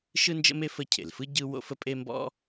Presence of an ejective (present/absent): present